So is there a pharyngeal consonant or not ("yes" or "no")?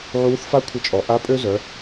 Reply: yes